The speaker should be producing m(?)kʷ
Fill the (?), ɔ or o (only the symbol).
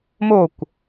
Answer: o